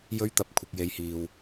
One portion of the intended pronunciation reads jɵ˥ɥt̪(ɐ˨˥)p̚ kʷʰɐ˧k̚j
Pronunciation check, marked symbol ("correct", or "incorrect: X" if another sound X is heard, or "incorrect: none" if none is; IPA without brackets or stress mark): correct